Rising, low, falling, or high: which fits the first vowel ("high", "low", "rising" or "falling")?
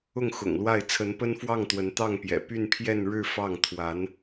falling